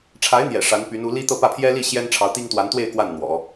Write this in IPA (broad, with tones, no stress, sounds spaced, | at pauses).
ʈ͡ʂʰ a˧˥ ɪ̯ n̪ j ɛ̰˨˩ ʂ a˧˥ n p y˧˥ n u˧˥ l i˥ t̪ ɤ˥˧ p ä˥˩ pʰ j ɛ˥ l i˥˩ ɕ j ɛ˥ n ʈ͡ʂʰ ɑ˧˥ ʊ̯ t̪ i˥ ŋ t̪ w a˧˥ n t̪ w e˥˧ ɪ̯ k w a˥˩ n n̪ w ɔ̰˨˩˦